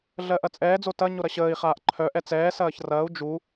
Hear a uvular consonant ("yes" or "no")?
yes